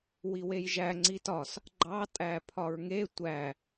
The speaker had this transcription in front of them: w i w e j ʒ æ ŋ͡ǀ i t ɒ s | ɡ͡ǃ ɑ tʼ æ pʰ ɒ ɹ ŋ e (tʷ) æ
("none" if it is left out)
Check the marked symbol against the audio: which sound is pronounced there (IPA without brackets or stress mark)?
tʷ